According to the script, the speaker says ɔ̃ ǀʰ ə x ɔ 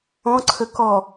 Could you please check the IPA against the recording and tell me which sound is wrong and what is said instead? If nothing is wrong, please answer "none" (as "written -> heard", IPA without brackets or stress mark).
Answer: x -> k